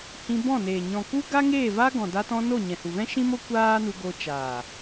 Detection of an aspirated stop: absent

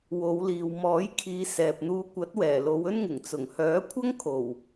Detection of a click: absent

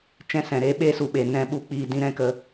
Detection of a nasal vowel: present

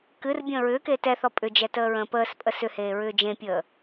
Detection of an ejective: present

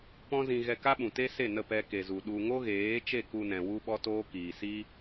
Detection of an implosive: present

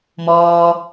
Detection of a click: absent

